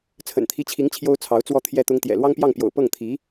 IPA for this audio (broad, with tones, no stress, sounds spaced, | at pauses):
t͡sʰ ə̰˨˩ n t̪ʰ i˧˥ t͡ɕʰ i˧˥ ŋ t͡ɕʰ j o˥ ʊ̯ t͡sʰ ɑ˧˥ ʊ̯ t͡s w ɔ˥˧ t̪ʰ j ɛ˥˩ t̪ ʊ˥ ŋ t̪ j ɛ̰˨˩ l w ɑ˥ ŋ p j ɑ˥˩ ŋ p j o̰˨˩ ʊ̯ p ɤ˥˩ ŋ t̪ʰ i˧˥